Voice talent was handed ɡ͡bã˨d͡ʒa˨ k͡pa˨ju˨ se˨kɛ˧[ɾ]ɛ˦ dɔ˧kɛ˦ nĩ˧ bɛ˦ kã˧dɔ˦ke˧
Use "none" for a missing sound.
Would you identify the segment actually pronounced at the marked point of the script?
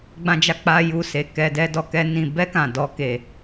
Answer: d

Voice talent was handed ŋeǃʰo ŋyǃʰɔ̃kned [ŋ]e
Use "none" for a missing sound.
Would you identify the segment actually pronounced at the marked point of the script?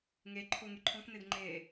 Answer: ŋ͡ǃ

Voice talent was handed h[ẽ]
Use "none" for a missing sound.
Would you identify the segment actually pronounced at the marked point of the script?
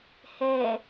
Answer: e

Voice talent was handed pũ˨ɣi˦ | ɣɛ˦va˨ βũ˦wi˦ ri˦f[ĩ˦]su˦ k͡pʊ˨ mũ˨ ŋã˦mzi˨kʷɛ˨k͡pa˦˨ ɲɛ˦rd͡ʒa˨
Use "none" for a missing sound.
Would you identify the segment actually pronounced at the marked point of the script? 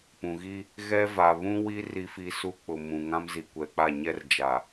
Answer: i˦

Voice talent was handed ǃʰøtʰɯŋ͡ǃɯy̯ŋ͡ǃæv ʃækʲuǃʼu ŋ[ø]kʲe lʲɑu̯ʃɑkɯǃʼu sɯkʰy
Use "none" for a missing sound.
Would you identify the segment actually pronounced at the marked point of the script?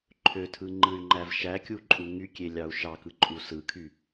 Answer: y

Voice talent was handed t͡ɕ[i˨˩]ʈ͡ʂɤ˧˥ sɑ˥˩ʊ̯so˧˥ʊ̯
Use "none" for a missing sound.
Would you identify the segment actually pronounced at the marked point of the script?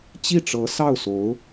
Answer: i˥˩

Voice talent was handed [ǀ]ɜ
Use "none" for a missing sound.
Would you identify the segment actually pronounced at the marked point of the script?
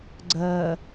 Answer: ɡ͡ǀ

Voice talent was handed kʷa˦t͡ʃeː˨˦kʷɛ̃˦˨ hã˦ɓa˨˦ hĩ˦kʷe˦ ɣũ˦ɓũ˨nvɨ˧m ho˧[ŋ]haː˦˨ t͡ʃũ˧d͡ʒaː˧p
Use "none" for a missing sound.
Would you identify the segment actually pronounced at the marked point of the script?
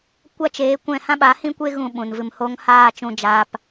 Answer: ŋ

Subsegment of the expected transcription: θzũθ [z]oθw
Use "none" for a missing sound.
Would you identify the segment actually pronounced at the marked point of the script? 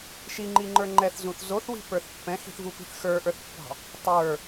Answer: z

